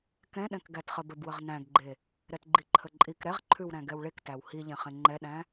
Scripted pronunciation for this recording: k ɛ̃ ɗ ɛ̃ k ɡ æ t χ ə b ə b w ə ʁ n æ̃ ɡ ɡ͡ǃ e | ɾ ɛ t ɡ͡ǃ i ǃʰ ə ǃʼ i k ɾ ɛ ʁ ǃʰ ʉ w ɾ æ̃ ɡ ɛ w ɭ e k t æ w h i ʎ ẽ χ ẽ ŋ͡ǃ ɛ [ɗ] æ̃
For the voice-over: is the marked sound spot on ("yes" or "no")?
yes